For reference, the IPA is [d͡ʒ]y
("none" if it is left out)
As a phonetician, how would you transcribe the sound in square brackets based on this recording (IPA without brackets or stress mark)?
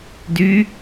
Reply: d